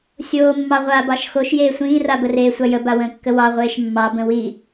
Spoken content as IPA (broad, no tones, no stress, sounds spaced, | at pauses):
sʲ oː mː ɑ ʁʷ aː b ɑ ʃ x o ʃ j eː sʷ ĩː r a b ə r eː sʷ a j ə b a w ə̃ː kː ə w ɑ ʁʷ eː ʃ mː ɑ b ə̃ w i